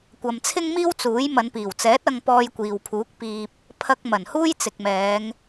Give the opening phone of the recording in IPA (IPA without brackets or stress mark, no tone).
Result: kʷ